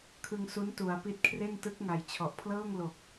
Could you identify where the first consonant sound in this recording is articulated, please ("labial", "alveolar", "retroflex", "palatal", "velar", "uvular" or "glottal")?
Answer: velar